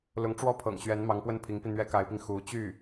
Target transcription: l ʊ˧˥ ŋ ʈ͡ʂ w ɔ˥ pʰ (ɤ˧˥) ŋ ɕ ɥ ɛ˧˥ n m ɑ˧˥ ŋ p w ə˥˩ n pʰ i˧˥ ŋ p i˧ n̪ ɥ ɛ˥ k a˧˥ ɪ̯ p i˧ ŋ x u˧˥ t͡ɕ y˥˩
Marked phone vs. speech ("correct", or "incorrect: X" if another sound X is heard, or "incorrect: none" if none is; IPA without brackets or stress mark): incorrect: ɤ̰˨˩